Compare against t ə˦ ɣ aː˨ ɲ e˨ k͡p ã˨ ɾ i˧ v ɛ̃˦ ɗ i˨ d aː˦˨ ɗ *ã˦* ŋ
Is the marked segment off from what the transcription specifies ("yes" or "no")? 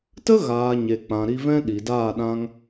yes